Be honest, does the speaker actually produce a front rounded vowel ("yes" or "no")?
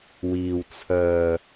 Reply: yes